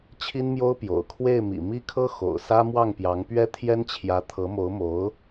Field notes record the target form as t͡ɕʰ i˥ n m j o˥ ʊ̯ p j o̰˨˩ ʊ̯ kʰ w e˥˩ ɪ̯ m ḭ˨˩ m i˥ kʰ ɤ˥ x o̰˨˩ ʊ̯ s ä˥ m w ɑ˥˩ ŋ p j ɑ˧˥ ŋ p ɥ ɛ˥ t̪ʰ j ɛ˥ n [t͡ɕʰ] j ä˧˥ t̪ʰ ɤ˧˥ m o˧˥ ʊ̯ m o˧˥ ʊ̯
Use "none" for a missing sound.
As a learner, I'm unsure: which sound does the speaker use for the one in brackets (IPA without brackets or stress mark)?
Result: t͡ɕʰ